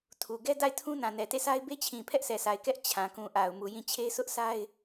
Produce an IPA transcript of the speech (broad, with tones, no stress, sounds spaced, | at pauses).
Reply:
tʰ u˨ ɡ ɛ˦ d a˦˨ ɪ̯ tʰ ũ˦ n ã˨ n ɛ˨ t e˦˨ sʰ a˦ ɪ̯ b e˦ t͡ɕʰ ĩ˨ pʰ ɛ˦ ʔ sʰ ɛ˨ s a˨ ɪ̯ k ɛ˦ ʔ t͡ɕʰ ã˨ k ũ˨ ʔ a˨ ʊ̯ m u˨ j ĩ˦˨ t͡ɕʰ e˦ s ʊ˦ ʔ s a˦ ɪ̯